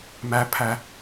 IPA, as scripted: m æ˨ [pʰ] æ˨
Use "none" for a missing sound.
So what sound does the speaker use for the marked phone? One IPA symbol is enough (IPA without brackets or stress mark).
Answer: pʰ